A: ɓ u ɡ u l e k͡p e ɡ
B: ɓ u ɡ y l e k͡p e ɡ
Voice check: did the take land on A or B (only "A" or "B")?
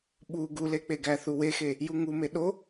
A